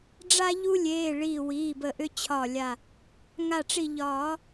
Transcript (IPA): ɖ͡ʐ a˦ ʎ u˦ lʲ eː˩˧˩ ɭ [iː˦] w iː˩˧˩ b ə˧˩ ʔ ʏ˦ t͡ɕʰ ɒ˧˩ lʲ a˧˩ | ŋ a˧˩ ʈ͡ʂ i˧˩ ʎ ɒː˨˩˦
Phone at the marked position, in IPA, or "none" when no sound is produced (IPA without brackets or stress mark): iː˧˩